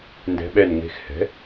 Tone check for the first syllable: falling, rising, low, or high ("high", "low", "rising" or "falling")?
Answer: rising